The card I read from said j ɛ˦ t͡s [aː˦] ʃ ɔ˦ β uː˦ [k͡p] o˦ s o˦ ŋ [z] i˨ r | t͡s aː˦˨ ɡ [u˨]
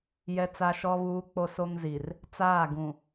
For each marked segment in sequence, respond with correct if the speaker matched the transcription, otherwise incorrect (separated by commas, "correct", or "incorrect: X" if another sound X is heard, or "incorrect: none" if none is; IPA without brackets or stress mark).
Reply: incorrect: a˦, correct, correct, incorrect: ũ˨